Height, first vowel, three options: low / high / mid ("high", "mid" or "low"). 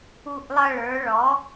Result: high